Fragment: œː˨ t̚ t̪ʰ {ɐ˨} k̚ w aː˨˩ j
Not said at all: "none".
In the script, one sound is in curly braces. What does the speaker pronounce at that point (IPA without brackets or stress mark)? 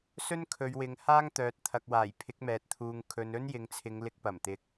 ɐ˨